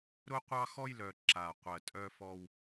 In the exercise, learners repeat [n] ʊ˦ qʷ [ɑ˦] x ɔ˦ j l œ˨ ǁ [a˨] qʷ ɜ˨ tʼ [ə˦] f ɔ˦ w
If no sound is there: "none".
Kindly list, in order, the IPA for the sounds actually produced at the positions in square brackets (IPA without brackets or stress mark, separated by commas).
ɾ, ɑ˦, a˨, œ˦